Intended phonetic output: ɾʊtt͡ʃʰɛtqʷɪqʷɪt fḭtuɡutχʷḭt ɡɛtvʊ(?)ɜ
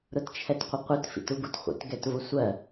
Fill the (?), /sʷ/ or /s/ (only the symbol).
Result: sʷ